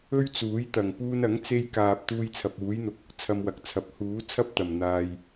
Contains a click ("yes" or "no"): no